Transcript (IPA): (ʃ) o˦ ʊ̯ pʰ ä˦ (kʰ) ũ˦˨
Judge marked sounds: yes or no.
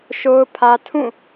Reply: yes, no

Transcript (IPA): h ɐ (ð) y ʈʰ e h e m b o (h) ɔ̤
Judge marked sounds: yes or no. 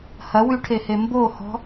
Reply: no, yes

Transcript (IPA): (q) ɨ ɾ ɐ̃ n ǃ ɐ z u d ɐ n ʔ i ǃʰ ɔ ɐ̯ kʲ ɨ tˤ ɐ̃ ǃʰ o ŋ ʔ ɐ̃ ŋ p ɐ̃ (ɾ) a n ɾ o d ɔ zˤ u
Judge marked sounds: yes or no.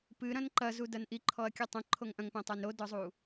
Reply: no, no

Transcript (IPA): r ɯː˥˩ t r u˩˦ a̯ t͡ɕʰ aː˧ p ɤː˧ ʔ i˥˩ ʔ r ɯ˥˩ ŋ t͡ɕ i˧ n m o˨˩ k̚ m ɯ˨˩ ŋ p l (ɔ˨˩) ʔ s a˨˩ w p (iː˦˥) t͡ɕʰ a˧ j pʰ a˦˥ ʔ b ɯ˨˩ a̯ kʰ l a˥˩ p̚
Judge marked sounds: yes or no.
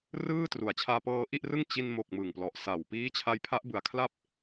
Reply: yes, yes

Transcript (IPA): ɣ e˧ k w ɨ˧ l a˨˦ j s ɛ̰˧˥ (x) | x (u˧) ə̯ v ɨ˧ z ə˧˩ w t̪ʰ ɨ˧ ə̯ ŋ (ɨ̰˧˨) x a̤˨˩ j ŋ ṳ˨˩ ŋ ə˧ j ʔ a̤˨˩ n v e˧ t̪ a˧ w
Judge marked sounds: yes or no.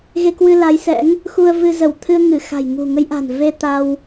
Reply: no, yes, no

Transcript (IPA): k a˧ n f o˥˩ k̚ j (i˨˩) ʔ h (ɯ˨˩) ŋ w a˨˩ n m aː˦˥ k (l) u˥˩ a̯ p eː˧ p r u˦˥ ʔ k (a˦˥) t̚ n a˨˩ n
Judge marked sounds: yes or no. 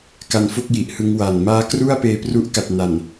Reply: yes, no, no, no

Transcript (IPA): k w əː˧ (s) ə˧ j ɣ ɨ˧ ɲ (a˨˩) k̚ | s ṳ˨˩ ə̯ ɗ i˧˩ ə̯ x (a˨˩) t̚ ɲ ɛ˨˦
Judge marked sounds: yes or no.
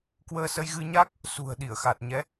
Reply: yes, no, yes

